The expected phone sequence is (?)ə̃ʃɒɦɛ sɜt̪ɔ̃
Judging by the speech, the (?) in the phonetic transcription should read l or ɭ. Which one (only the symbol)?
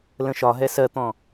l